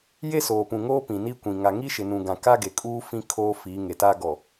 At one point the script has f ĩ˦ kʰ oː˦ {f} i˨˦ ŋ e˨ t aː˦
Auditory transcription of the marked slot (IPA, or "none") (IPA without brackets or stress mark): f